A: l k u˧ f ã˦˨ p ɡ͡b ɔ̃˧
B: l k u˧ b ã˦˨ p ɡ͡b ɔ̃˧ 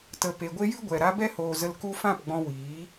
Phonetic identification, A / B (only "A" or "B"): A